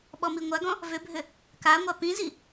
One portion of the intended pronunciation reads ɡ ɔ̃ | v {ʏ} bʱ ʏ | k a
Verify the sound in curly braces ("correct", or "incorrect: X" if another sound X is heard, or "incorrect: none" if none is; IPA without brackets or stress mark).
correct